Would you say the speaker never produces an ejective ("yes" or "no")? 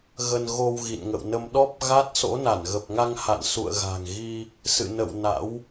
yes